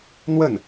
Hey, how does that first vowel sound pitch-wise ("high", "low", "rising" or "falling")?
falling